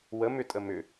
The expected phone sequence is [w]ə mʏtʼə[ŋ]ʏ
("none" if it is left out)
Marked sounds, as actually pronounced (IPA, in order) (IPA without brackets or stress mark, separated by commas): w, m